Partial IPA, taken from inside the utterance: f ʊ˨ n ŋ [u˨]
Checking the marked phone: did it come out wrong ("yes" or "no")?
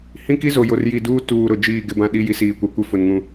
yes